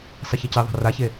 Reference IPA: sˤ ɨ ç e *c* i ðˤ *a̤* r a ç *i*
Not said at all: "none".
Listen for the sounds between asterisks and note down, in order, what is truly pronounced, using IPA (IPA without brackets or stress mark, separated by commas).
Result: c, a̤, e